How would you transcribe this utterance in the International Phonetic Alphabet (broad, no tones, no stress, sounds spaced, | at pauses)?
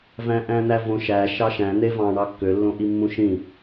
v æ̃ ʔ æ̃ n̪ æ v õ ʃ æ ʃ ɑ ʃ æ̃ n̪ e v ɑ̃ ɳ ɑ kː ø lː õ ʔ i mː ũ ʃ ĩ